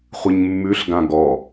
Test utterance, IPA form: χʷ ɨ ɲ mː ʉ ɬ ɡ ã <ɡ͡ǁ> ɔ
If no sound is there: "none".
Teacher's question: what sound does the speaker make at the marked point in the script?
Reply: ɡ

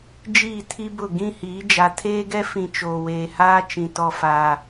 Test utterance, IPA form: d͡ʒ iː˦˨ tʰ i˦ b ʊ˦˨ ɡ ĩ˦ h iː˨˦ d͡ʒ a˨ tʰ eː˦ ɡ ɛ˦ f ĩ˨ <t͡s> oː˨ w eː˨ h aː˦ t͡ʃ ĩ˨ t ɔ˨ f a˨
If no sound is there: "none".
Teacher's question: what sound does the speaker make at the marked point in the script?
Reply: t͡ʃ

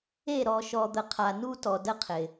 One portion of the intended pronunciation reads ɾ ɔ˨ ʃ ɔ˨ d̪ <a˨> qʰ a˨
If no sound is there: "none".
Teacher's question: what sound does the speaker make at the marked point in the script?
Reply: ə˨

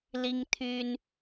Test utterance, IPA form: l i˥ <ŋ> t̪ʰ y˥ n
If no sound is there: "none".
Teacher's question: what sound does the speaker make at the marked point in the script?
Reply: ŋ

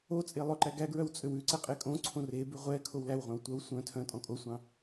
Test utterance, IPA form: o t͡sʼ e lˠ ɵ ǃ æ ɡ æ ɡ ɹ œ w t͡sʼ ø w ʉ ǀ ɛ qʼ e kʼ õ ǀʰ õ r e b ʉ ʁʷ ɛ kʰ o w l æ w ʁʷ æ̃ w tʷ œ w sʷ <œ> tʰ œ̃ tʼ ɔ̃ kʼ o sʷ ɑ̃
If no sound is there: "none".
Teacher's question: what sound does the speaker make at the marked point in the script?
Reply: œ̃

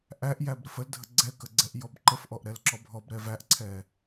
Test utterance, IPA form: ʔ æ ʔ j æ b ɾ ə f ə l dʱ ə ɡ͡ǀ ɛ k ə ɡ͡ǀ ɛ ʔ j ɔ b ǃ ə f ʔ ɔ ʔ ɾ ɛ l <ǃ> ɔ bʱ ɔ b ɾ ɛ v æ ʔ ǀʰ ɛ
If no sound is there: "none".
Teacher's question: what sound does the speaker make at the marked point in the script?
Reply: ǁ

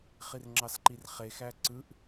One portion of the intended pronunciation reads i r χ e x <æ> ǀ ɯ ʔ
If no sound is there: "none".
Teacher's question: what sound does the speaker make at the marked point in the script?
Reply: æ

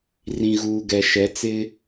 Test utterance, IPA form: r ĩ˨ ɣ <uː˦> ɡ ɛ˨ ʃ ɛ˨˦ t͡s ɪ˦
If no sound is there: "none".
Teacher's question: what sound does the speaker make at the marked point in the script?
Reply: uː˨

